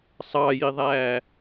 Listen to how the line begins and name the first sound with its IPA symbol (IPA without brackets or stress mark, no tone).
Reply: sˤ